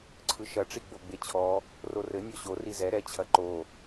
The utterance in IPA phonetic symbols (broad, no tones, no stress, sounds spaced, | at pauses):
ǀʰ ɯ ʃ ɐ ʈ͡ʂ i ɡ͡b o ɡ͡b e t͡ɕʰ ɔ | r o r ɘ nʲ ɔ ɕ o r i z ɛ ɾ ɛ t͡ɕʰ ɐ ǃ o